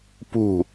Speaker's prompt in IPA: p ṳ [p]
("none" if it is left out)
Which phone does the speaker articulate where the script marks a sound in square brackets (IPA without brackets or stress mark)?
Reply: none